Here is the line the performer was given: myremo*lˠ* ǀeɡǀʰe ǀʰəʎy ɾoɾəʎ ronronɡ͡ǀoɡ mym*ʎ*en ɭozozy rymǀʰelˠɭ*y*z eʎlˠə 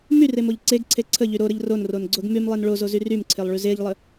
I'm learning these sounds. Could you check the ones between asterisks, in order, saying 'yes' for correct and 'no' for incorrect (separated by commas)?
no, no, yes